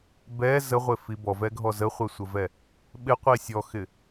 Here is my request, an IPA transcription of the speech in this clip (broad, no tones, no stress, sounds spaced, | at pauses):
b ɛ z ə ʁʷ ɪ f i b ɔ v ɛ ɡʱ ɔ z ə χʷ ɛ sʷ ə v ɛ | ɓ ɪ qʷ i sʲ ɔ x ɪ